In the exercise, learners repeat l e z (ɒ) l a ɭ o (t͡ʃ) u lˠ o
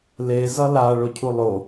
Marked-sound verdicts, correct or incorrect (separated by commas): incorrect, incorrect